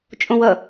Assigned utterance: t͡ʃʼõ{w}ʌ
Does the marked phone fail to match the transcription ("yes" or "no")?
no